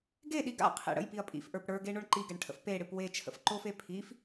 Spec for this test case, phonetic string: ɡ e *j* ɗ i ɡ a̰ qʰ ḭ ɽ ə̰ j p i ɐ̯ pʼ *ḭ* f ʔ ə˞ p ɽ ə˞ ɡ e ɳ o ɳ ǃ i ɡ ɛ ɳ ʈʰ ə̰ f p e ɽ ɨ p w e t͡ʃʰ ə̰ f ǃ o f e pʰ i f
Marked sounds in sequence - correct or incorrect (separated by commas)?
incorrect, correct